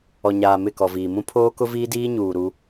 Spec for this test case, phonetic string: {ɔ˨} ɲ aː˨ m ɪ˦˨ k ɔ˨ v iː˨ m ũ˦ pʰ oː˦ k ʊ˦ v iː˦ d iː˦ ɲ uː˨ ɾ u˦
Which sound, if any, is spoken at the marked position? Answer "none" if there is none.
ɔ˨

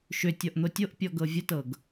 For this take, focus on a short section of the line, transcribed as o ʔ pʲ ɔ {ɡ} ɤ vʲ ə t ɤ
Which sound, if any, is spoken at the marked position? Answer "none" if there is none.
ɡ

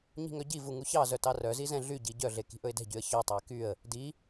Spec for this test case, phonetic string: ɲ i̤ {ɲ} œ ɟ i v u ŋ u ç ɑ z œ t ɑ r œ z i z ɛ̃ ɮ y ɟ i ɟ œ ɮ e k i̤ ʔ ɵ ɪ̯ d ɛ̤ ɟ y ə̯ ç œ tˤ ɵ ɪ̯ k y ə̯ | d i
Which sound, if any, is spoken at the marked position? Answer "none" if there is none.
ŋ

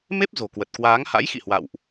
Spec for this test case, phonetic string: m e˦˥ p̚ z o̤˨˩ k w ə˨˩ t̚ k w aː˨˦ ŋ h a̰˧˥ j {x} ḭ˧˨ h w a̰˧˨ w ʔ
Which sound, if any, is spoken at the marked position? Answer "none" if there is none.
x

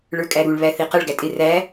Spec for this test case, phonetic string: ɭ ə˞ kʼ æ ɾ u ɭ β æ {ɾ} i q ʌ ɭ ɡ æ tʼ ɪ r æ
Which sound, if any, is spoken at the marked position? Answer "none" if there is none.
θ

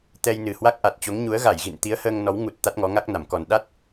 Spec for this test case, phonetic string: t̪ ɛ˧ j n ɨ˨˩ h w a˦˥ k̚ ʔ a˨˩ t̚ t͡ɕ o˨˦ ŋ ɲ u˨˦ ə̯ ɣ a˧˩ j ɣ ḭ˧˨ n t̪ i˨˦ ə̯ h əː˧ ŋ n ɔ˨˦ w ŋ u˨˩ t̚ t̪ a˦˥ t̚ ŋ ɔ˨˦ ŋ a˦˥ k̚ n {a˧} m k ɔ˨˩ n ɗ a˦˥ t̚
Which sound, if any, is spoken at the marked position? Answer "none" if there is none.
a˧˩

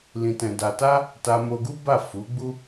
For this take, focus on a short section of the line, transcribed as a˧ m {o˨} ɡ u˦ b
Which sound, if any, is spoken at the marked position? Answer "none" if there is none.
o˧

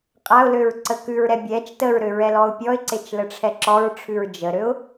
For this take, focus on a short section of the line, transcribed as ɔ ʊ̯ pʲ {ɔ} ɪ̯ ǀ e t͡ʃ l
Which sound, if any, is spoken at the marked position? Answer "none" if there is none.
ɔ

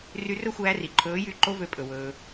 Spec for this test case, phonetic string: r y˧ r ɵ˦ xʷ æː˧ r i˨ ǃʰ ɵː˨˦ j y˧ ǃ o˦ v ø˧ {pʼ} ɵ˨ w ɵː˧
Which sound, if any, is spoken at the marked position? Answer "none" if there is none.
pʼ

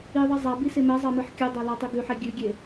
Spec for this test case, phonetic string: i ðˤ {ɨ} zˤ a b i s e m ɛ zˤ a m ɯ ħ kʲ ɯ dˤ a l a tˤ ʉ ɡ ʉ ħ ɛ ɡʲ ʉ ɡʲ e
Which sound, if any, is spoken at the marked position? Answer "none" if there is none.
i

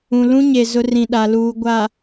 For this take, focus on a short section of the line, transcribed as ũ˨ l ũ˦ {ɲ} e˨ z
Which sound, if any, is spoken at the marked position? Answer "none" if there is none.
ɲ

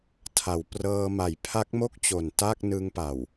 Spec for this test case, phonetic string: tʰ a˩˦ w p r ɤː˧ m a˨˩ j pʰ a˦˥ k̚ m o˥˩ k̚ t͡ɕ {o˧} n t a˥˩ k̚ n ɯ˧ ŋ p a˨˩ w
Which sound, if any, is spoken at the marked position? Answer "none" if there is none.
o˨˩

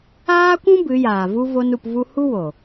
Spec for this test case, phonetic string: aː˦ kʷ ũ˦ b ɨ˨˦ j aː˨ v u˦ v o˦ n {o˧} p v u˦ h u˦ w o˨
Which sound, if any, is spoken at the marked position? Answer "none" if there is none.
u˧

